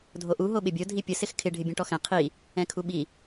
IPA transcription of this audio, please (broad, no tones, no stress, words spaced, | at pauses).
dʱoʔu ɦoɓɪbʲo dʱipʲʊ sɪxkʰɪ ɖʱɪbʲõʈɔxɛ̃ qʰi | ɛ̃kʰuɓi